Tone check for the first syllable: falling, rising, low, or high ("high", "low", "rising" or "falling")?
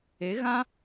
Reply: rising